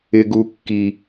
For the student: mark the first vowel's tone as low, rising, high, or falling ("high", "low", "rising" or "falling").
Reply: high